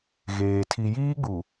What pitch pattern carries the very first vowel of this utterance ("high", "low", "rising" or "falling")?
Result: low